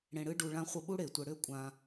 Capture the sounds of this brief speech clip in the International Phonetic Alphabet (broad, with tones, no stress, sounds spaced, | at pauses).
ɽ ẽ˧ ɽ ɨ˦ ɖ u˧ ɭ ã˦ χʷ ʌ˧ ɓ u˦ ɽ e˨ tʷ ə˧ ɽ ʏ˦ kʷʼ ã˧